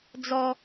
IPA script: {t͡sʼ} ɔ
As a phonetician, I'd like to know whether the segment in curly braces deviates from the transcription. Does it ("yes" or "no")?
yes